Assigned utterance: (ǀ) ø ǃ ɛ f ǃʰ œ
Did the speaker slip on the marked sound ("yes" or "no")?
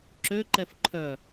yes